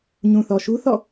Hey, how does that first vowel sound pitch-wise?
low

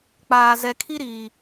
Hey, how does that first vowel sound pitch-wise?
low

